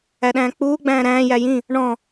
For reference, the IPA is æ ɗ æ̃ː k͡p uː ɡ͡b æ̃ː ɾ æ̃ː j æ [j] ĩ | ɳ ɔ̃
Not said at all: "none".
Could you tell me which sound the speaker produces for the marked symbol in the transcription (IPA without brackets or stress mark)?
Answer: j